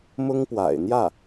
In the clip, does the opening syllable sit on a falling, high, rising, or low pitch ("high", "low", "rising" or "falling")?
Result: high